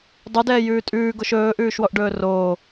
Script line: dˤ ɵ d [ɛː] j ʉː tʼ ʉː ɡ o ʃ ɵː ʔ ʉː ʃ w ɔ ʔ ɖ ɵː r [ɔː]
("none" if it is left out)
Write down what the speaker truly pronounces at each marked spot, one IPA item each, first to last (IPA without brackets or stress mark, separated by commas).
ɛː, oː